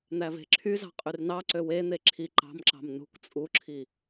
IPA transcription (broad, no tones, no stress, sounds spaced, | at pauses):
n̪ æ v e̤ ǁʰ y z ɑ̤ qʼ y r n ɑ ǀ ø w e n̪ e ǁʰ i ǃ ɑ̤ m ǁ ɑ̤ m n ṳ k t͡sʼ u ǁʰ i